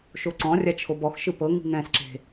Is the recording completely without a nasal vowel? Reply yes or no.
no